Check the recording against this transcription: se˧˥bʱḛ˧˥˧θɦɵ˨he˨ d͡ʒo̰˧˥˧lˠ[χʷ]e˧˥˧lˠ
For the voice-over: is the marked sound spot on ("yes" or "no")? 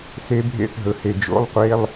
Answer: no